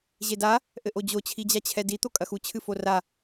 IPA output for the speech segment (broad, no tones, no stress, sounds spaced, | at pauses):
ʑ e d a | ʔ ɘ ʔ o d͡ʑ o t͡ɕʰ i d͡ʑ a t͡ɕʰ ɛ d i t̪ o kʼ ɐ x u t͡ɕʰ ɨ f o r a